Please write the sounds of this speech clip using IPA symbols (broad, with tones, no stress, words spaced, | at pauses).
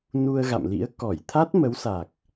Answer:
nu˧ə̯ɣa̰˧˨mlḭ˧˥ə̯ kɔ˧˩jt̪ʰaː˦˥t̚ mə˨˦wsa˨˩k̚